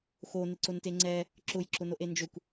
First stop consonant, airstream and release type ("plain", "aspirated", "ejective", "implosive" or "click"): click